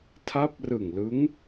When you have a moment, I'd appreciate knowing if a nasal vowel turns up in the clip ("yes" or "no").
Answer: no